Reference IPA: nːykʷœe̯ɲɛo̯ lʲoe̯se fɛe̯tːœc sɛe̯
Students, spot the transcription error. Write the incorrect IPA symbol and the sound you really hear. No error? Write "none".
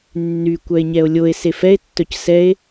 none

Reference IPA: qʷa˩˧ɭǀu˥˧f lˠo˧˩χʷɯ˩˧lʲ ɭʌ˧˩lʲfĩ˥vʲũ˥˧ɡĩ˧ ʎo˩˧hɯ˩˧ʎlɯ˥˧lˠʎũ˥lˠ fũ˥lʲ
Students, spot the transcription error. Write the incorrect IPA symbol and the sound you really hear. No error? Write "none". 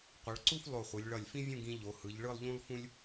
l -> ɭ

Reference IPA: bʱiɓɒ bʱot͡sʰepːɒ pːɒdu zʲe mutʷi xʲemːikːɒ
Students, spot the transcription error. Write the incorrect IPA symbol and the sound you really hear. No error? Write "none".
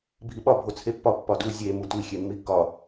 none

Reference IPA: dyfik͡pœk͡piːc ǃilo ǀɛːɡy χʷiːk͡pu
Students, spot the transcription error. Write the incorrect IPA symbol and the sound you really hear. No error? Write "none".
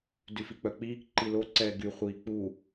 c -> k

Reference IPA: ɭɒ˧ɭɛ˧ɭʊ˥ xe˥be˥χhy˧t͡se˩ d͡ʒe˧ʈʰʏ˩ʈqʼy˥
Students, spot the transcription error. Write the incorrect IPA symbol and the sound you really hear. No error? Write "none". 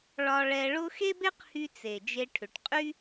χ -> q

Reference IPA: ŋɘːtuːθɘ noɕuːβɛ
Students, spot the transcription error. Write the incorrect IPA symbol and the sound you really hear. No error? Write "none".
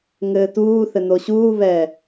none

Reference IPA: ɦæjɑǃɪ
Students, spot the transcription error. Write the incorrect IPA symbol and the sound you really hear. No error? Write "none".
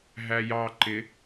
none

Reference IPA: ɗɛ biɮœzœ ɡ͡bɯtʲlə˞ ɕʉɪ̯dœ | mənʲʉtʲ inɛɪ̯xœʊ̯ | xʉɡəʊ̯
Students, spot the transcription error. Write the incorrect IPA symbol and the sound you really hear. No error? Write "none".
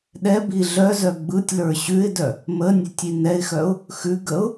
none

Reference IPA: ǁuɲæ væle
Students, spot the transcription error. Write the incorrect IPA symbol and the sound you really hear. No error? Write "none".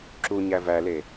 none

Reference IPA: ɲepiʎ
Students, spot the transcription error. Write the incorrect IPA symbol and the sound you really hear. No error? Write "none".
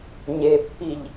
p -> pː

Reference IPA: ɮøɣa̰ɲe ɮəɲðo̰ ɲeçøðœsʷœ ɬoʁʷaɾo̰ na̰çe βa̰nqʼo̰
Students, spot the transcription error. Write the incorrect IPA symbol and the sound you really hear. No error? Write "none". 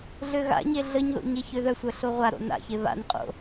none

